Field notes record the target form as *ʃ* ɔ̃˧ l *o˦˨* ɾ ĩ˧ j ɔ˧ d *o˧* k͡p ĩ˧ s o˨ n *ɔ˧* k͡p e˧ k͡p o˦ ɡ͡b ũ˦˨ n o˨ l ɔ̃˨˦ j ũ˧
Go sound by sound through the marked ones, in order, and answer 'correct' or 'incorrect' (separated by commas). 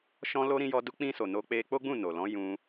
correct, incorrect, incorrect, incorrect